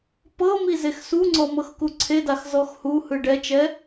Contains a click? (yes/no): yes